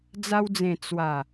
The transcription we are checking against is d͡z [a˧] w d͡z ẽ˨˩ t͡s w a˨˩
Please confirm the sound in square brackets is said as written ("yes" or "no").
yes